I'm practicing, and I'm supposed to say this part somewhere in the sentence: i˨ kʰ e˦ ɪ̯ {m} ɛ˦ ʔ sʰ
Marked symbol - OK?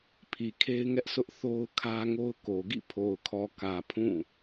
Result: no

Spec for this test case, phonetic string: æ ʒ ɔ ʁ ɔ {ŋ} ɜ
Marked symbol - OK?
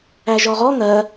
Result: yes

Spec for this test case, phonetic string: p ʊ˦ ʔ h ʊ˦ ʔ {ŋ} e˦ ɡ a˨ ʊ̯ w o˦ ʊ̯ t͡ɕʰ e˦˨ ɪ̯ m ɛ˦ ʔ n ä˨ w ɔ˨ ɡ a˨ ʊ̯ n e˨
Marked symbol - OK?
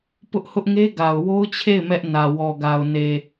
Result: yes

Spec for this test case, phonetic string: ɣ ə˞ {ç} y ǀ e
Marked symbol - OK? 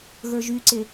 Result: no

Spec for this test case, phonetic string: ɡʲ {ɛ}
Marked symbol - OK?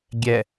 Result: yes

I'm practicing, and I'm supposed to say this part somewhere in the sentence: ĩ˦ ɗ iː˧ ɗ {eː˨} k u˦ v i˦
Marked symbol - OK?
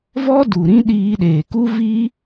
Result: yes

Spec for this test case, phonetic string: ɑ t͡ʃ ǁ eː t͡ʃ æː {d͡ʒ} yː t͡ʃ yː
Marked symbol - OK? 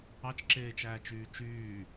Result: no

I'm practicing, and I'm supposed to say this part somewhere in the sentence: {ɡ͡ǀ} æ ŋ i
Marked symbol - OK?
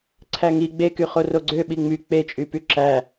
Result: no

